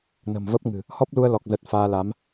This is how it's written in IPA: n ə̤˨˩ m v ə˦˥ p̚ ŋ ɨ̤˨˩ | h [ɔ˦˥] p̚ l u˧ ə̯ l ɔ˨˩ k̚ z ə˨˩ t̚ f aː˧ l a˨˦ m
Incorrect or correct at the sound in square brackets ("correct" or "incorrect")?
correct